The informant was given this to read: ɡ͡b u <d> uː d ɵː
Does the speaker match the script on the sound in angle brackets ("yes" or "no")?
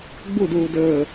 yes